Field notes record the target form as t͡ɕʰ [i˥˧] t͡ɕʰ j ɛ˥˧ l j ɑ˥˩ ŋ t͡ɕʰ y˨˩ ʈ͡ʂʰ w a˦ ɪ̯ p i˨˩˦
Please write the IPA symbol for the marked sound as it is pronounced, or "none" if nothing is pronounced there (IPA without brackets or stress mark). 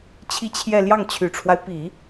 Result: i˥˧